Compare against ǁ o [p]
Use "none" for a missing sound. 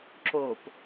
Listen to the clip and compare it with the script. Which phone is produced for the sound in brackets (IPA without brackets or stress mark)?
p